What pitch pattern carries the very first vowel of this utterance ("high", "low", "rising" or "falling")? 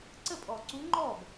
falling